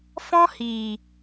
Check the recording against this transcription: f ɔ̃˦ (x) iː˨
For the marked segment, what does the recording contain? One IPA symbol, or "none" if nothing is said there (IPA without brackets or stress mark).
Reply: h